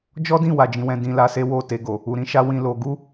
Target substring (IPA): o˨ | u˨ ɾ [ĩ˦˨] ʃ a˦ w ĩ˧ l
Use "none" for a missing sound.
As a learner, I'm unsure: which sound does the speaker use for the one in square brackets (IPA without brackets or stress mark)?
ĩ˧